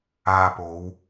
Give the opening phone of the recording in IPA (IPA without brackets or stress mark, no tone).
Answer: aː